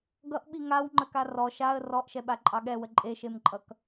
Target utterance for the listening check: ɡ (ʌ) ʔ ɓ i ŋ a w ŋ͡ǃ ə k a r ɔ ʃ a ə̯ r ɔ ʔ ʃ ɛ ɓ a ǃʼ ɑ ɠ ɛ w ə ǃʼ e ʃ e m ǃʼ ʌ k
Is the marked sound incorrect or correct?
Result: correct